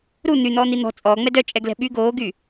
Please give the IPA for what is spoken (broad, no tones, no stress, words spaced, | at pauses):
ɾu n̪yn̪ɔːn̪i n̪ɔ̤ t͡sʼɔː ŋ͡mɛdœ t͡ʃʼɛɡlɛ̤ɓy ɡoːɡy